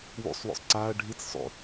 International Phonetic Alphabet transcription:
w ṵ sˤ w o̰ sˤ ǀ a ɐ̯ ɖʱ i t͡s sˤ o̰

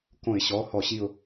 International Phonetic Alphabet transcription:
k õ˧˩˧ ɪ̯ ɕ ɔ˩˧˩ h ɔ˧˩˧ ɕ i˦˨ ʊ̯

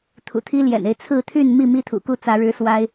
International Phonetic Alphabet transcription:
t̪ʰ ṵ˨˩ t̪ʰ i˦ l j ɛ̰˨˩ n e˦ ɪ̯ t͡sʰ ɹ̩˥˨ t̪ʰ y˥˨ n m i˥˨ m i˦ t̪ʰ ṵ˨˩ k u˥˨ t͡s ä˨˦ ɻ ɻ̩˦ s w a˦ ɪ̯

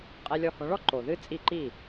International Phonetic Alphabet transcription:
qʼ ɛ˧ lʲ ɔ˧ h õ˩˥ ɭ ɔ˥ ǃ o˩ ð ɨ˥ t͡sʼ i˥˩ ǃ i˥˩

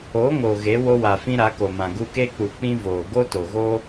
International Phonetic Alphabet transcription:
o˨˦ ŋ o˨ ɣ e˨˦ w o˦ w a˨ f ĩ˦ ɾ a˨˦ k o˨ m ã˨ ɡ u˧ k e˦ k͡p u˨ k͡p ĩ˦ v oː˨ ɡ o˦ t o˨ ɣ o˦

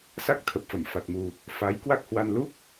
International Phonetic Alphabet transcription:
s a˦˥ k̚ t̪ʰ ə˨˩ p̚ f ə˧˩ m f a˨˩ t̚ m u˨˩ | f a˨˦ j k w a˦˥ k̚ h w a˧ n l u˦˥ k̚

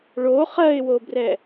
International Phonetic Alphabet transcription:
ɭ o χ ɜ ɪ̯ w o b r ɛ

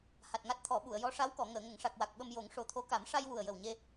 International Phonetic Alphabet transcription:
h a˨˩ t̚ ŋ a˦˥ t̚ t̪ʰ ɔ˨˩˦ ɓ u˨˩˨ ə̯ j ɔ˧˥ ʂ a˧˥ w k ɔ˨˩˨ ŋ əː˨˩˨ ŋ ə˨˩˨ ŋ ʂ a˨˩ k̚ w a˨˩ k̚ ɓ ə˧ m j o˨˩˦ ŋ ʂ o˨˩ t̪ʰ o˧˥ k a˨˩˦ m ʂ a˧ j w u˨˩ ə̯ j ə˨˩ w ɲ e˧

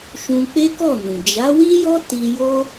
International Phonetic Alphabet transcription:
ʃ ũ˧ k͡p e˦ k ɔ˦˨ n ũ˨ d͡ʒ a˨˦ w i˦ j ɔ˦ t i˧ j o˦

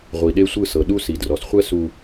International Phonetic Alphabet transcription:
ʁʷ i˨ ɗ e˦ sʷ ɯ˦˨ s ɤ˨ ɗ u˦ s i˨ d r ɔ˨ s χʷ ɛ˦ s u˦

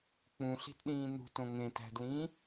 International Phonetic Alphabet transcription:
k͡p ũ ɬ i̤ t ɗ ĩː n ṳ t õ ŋ ẽ t æ̤ d l ĩː

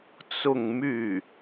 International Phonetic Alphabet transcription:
t͡s ʊ˥˧ ŋ m y˥˩

